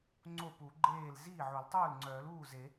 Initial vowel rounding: rounded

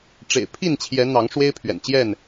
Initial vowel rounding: unrounded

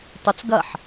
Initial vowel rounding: rounded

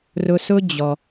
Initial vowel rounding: rounded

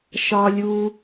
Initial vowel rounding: rounded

